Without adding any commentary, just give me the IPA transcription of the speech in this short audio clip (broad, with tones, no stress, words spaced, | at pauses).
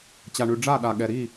t͡ɕa˨ɳʉ˨ ɖ͡ʐa˦˨ɗa˨ ɠɛ˨ɾi˦˨